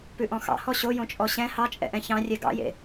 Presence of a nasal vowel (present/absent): present